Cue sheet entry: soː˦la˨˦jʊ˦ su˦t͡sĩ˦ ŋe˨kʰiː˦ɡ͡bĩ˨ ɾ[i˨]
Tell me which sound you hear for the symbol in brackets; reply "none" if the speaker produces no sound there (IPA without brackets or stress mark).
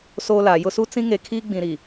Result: i˨